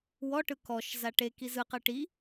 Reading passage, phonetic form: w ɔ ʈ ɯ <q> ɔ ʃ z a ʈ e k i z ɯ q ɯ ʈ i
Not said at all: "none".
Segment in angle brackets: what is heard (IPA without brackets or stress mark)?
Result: k